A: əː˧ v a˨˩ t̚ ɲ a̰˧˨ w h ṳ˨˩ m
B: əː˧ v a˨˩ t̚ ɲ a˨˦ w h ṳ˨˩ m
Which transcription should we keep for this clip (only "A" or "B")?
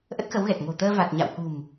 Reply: A